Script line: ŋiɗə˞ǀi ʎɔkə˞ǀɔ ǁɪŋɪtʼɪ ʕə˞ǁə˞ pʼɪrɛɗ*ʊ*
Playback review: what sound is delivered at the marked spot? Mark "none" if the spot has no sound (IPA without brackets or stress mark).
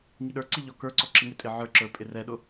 ʊ